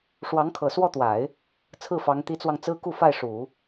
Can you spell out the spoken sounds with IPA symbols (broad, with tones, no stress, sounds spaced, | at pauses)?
ʂ w ɑ˧˥ ŋ kʰ ɤ˨˩ s w ɔ˥˩ t̪ w a˨˩˦ ɪ̯ | t͡sʰ ɹ̩˥˩ f ɑ˧˥ ŋ t̪ i˧˥ t͡s w ɑ˧ ŋ t͡s ɹ̩˥ k u˥˧ f a˥˩ ɪ̯ ʂ u˨˩˦